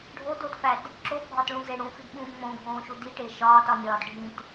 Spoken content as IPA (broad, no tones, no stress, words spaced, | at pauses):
ɖʱodotfæd | ǁobʱɒtɭũze ɽũfidɓũː ŋ͡mõɡʱõːʃu diʈe ʃɒːtɒnʲɒːd ɖʱĩt